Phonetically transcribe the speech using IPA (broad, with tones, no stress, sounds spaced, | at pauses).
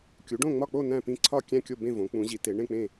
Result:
kʲ u˨˦ ɖ õ˥˧ ŋ͡m ɒ˥˧ k͡p o˥˧ n æ̃˥˧ p ĩ˥˧ ǀʰ ɒ˥˧ kʲ æ̃˥˧ kʲ o˥˧ b ẽ˥˧ v õ˨˦ k͡p ũ˨˦ ʑ i˨˦ t e˨˦ ɳ ẽ˥˧ k͡p ẽ˥˧